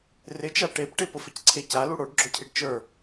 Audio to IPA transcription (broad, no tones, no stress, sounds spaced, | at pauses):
r ɪ t͡ʃ a ʈ e p ʈ ɪ p ʊ f ɪ c ǀʰ e c a l u ɽ o ɖ ɡ͡ǁ o cʰ i ɖ t͡ʃ ə˞